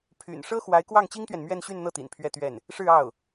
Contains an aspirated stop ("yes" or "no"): yes